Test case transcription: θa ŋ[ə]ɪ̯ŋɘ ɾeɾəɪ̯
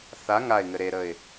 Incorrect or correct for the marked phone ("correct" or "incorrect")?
incorrect